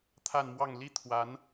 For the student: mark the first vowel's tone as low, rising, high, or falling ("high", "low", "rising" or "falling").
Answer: falling